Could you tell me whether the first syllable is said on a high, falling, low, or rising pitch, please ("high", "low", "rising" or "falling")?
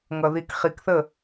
low